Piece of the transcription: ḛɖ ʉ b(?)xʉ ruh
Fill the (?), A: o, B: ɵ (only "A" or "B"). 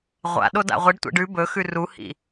B